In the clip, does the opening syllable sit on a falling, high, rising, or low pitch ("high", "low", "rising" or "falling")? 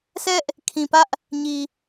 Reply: high